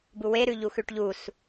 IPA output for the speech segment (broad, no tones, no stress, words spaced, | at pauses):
buwe ɾʉʎuxʉʈʎus